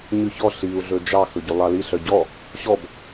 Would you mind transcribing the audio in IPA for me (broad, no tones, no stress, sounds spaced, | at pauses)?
ɲ ʉ ç ɔ ɬ i u̯ ɮ ɵ d͡ʒ ɑ x ɵ ɟ ʉ lˠ ɑ l i ɬ œ ɟ ɔ | ɕ ɔ b